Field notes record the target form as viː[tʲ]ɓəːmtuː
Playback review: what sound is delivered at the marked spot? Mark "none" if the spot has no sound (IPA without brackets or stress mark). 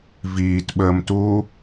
t